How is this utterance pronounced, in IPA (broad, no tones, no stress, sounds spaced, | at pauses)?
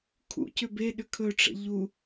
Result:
kʰ ṵ c ʏ b e ɗ ʏ kʰ ɵ ʈ͡ʂ ə̰ ʎ u